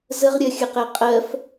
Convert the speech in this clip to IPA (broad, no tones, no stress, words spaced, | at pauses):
zəʁɾʲɜxʲəqɛ qʼɜf